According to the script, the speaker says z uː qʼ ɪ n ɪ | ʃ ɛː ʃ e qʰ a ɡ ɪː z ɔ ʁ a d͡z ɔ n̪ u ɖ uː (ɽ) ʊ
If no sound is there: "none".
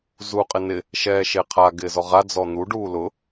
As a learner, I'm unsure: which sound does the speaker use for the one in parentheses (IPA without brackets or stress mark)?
l